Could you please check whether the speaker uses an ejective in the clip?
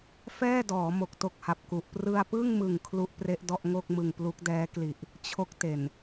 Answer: no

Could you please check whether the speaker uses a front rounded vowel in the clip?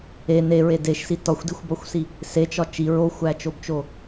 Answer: no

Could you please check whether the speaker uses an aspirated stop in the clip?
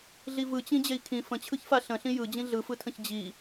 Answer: yes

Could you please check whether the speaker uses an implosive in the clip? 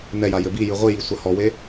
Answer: no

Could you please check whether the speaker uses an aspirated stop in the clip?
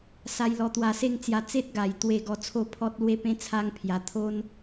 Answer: yes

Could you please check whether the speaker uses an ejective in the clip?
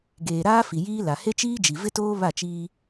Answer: no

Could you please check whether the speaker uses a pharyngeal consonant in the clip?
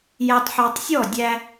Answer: yes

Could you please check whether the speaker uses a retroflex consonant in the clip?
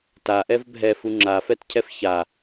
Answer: no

